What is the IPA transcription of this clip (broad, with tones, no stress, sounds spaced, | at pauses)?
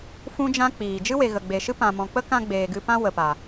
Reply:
f ũ˦ d͡ʒ ã˦ k͡p iː˨ d͡ʒ ɨ˦ w e˨ ɣ ə˨ ɡ͡b e˨ ʃ ɨ˦ p ã˨ m ɔ̃˨ k͡p ə˦ k ã˧ ɡ͡b eː˨ ɡ ɨ˧ p ã˦ w ə˨ p a˨